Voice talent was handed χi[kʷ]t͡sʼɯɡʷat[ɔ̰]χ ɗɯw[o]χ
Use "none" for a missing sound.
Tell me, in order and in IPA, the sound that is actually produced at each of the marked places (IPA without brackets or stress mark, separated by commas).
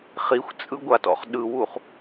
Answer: xʷ, ɔ̰, u